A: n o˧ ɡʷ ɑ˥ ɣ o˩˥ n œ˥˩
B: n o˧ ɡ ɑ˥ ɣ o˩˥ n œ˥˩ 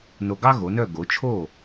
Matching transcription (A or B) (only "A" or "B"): B